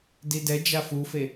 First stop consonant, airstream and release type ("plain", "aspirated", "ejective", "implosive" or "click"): plain